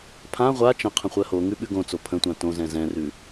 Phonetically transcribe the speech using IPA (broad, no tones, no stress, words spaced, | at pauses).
pʰã ʁʷa t͡ʃə̃ qʰə̃χʷɜhoŋʉ ɓʉɡõt͡so pʰə̃tʷã tõzɛ̃ zɛ̃rʉ